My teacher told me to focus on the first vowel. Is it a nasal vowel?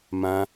yes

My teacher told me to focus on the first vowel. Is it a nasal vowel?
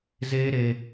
no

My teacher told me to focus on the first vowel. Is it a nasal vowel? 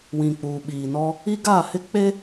yes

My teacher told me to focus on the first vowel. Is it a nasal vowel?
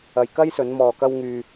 no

